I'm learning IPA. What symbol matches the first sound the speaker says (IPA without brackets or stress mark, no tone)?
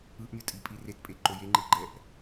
ɯ